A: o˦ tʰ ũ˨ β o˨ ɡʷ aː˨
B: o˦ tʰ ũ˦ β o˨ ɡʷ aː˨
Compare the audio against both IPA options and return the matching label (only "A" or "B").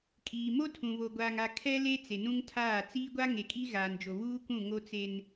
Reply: A